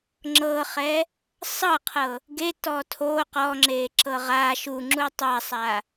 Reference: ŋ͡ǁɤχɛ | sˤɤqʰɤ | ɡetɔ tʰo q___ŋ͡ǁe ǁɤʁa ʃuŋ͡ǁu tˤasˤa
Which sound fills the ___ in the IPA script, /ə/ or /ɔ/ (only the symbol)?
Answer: ɔ